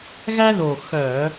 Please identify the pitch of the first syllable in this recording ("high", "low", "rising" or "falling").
high